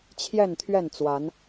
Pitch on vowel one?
falling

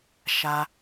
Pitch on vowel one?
high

